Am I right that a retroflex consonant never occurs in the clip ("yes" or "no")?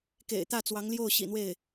yes